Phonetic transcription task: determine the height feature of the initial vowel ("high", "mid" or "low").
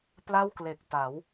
low